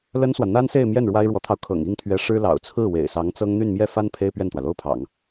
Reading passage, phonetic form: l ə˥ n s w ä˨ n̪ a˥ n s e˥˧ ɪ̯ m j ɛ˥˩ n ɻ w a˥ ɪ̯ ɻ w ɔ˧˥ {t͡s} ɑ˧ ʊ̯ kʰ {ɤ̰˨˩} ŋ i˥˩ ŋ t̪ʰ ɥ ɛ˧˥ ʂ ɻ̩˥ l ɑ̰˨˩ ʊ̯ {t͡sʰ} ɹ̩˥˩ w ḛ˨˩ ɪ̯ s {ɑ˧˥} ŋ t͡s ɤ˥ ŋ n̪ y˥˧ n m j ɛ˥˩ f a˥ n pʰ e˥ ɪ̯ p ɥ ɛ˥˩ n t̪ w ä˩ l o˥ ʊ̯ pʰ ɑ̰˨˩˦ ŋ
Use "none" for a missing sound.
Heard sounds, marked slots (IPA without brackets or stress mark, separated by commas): t̪ʰ, ɤ̰˨˩, t͡sʰ, ɑ˧˥